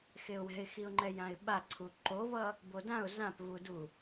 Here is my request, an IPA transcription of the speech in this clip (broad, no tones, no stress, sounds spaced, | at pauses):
x e ʊ̯ w ɛ̤ ɪ̯ x i ʊ̯ ŋ͡ǃ ɛ j ã ɪ̯ ɓ a ǀʰ u ǃ o v ʌ | b o d ã ʊ̯ z ã p v u d u